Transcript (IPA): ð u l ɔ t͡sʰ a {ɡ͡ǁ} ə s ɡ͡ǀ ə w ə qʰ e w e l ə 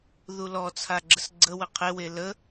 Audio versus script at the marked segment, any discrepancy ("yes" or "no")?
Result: no